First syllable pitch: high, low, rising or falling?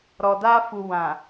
low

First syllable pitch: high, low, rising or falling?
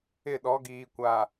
falling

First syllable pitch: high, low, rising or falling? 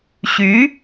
rising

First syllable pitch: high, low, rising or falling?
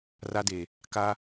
high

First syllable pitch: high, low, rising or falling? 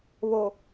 low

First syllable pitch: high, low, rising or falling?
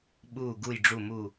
low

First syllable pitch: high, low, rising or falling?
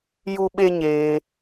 high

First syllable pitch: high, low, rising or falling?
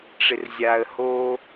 low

